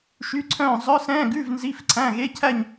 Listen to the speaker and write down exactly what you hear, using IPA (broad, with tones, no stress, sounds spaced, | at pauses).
ʃ y˧˥˧ ǀʰ œ̃ː˥˧ zˤ œ˧˥˧ s ɛ̃ː˧˥˧ ɡ ʉ˧˥˧ v n z i˧˥˧ f ǀʰ æ̃˧˥˧ ɣ e˧˥˧ cʰ æ˥˧ ɲ